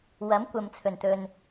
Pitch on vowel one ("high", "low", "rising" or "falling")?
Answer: rising